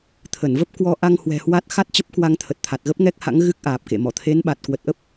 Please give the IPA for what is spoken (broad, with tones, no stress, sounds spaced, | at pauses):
t̪ʰ ə˧˩ n v ə˦˥ p̚ k w ɔ˧ ʔ a˧ ŋ h w ɛ̤˨˩ h w a˦˥ t̚ x a˦˥ t̚ t͡ɕ ə˦˥ p̚ k w a˧ ŋ t̪ʰ ə˨˩ t̚ t̪ʰ a˨˩ t̚ ɣ ə˦˥ p̚ ŋ ɛ˦˥ k̚ h a̰˧˥ ŋ ɣ ɨ˦˥ k̚ ʔ aː˨˩ p̚ k ḛ˧˨ m ɔ˧˩ t̪ʰ e˨˦ n ɓ a˨˩ t̚ k w ə˨˩ t̚ ʔ ə˦˥ p̚